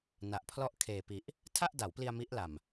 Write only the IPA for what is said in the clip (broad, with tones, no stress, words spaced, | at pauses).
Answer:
na˨˩ʔpʰlɔ˥˩ʔ kʰeː˨˩pi˨˩ʔ | tʰa˥˩ʔda˩˦wpli˧a̯ mi˦˥ʔla˨˩m